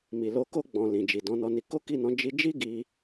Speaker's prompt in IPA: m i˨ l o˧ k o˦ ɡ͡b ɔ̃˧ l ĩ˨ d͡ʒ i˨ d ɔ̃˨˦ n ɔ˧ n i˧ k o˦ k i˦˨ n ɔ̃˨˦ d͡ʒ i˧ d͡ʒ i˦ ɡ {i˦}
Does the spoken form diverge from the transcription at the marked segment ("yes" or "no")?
no